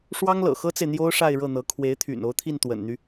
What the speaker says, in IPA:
ʂ w ɑ˥ ŋ l ɤ̰˨˩ x ɤ˥ t͡s e˨ ɪ̯ n̪ j o˥ ʊ̯ ʂ a˥˧ ɪ̯ ɻ ɤ˥˩ n̪ ɤ˧˥ kʰ w e˧˥ ɪ̯ t̪ʰ y̰˨˩ n o˧˥ ʊ̯ t̪ʰ i˥˩ n t̪ w ə̰˨˩ n n̪ y˦

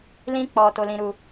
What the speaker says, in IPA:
l ĩ˦ k͡p ɔ˧ t o˧ l ĩ˧ ɾ u˧

